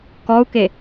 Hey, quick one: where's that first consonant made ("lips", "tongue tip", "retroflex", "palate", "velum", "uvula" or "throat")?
velum